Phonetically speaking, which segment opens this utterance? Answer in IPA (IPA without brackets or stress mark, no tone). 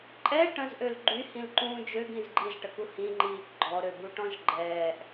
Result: ǃʼ